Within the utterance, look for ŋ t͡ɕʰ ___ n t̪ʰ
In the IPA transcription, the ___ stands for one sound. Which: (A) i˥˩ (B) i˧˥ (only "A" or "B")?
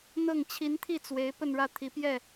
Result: B